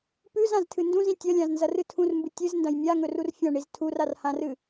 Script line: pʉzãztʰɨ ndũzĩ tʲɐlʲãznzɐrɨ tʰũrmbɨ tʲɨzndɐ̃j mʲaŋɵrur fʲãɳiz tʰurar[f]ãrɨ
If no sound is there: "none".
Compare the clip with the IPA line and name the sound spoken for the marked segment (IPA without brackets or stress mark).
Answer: h